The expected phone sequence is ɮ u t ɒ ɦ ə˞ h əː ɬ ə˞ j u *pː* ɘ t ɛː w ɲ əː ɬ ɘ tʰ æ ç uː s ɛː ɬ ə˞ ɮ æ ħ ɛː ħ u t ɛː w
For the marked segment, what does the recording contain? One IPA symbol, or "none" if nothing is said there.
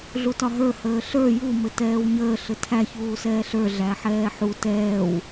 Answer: m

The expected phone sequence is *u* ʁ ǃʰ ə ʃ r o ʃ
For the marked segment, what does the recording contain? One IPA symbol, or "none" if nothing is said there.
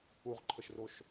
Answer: u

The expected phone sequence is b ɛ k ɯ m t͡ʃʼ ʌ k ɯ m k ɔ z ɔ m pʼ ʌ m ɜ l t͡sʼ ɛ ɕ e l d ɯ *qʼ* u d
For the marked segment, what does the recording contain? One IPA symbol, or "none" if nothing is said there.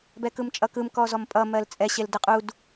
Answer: qʼ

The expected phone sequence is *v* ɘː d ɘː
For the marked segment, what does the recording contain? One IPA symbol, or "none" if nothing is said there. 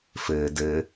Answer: f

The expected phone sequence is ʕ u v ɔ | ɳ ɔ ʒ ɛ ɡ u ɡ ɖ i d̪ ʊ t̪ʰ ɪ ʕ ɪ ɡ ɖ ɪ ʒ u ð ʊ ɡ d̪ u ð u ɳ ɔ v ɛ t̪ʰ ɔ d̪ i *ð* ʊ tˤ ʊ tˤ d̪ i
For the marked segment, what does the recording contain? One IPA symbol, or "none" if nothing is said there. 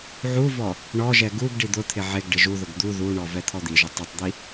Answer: ʒ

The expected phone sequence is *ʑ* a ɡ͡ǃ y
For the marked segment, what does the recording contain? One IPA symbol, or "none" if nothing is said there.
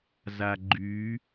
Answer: z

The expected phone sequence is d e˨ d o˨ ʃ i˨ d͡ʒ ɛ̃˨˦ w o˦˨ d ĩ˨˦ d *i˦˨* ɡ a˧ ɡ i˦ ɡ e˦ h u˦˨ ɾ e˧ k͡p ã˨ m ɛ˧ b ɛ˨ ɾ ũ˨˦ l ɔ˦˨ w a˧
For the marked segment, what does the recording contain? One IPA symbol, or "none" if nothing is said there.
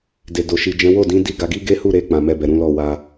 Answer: i˦˨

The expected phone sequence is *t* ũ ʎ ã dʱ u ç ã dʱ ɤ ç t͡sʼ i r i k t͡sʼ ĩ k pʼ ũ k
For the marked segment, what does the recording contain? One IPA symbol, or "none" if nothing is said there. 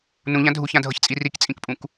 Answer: n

